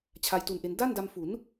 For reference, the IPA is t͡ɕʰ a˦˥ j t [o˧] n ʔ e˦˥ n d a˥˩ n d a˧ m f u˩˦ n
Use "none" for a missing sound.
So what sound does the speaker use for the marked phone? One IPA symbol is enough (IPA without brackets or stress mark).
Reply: u˧